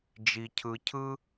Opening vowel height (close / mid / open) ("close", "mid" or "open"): close